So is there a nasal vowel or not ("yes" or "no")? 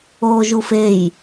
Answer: no